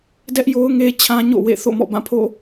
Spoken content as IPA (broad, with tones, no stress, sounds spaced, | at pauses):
d ɛ˦ ʔ j o˦ ʊ̯ ŋ e˦ t͡ɕʰ ã˦ ɲ o̰˦˨ w ḛ˦˨ θ o̰˦˨ m ɔ̰˦˨ b ã˦˨ pʰ o̰˦˨